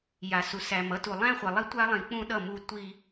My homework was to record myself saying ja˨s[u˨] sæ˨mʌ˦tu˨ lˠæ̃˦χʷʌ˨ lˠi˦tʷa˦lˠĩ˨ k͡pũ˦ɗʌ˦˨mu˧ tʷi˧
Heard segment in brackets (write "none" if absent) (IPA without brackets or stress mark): u˨